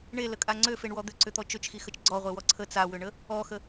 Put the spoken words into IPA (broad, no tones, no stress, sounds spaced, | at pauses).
ɳ e l ə kʼ a ŋ͡ǀ ø f e ɳ w ɔ d̪ ʏ ǀ ʏ t̪ ɔ t͡ʃ ø t͡ʃ x i x ə t͡ʃ ɡ͡ǀ ɔ ʁʷ e w ɔ ǀʰ ə t͡s a w ʏ ɳ ə | ɔ x ə